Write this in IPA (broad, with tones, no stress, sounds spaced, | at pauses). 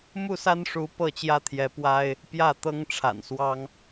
m u˥˨ s a˦ n ʂ u˨˦ p ɤ˥˨ t͡ɕ j ä˦ t̪ʰ j ɛ˨˦ p w a˦ ɪ̯ | p j ä˥˨ t̪ ɤ˦ ŋ ʈ͡ʂʰ a̰˨˩ n s w ɑ˦ ŋ